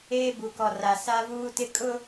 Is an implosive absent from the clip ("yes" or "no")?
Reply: yes